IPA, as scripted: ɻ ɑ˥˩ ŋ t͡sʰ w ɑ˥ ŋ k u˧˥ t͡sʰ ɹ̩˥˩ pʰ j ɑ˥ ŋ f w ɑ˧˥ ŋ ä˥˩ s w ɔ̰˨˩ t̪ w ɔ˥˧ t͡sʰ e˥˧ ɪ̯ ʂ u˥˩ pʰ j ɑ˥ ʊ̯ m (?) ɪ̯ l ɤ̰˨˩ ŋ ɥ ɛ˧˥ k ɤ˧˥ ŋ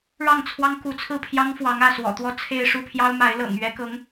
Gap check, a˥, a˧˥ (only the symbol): a˧˥